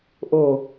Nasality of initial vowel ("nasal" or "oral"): oral